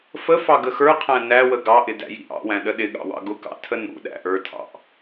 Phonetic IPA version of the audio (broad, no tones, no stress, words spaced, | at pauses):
fəfɑ ɡəxə˞qʰæ̃ næwə ɡɑʔɪ dæ̰jḭʔɑ̰wæ̃ ɗəɗɪɠɑ̰ wɑ̰ɡʊkɑ̰ tʰənṵɗæ̰ ʔə˞tʰɑ̰ʔ